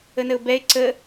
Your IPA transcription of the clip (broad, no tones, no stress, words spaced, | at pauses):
ənəʊ̯bɛɪ̯ ǀə